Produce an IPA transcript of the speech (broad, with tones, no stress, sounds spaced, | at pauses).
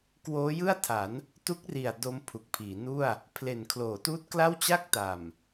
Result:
k w oː˦˥ j ɯ˥˩ a̯ tʰ a˩˦ n | t u˦˥ k̚ r i˨˩ a̯ d o˦˥ m pʰ u˨˩ k̚ pʰ iː˩˦ n u˥˩ a̯ | pʰ l e˨˩ n kʰ l oː˩˦ t uː˦˥ t̚ k l a˥˩ w t͡ɕ a˥˩ k̚ t a˨˩ m